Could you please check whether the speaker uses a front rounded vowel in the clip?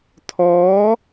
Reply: no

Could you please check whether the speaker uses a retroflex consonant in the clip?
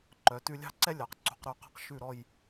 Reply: no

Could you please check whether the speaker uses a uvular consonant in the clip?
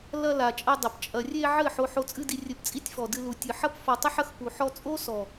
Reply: no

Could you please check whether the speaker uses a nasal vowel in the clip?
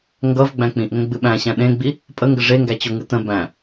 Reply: yes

